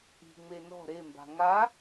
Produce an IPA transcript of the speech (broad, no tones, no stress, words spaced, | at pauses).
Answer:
i̤ŋ͡me nɔ̤ ɾemba̤ ŋa